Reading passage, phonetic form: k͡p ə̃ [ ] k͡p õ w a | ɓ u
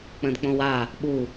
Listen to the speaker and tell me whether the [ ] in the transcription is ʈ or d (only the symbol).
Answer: d